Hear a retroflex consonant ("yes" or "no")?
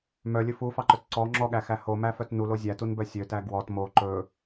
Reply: no